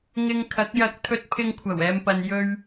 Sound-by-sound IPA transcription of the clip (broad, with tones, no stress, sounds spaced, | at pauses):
ŋ ɪ˧ ŋ kʰ ɐ˨˥ k̚ j ɐ˧ k̚ t̪ʰ ɵ˧ t̚ pʰ ɪ˧ ŋ kʷʰ ɐ˨˩ w ɛː˨ m p ɐ˨ n j ɵ˥ ɥ